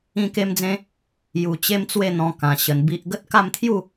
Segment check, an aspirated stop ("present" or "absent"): present